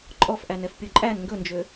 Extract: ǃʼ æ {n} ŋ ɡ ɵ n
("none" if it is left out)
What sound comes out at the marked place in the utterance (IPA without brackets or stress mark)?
n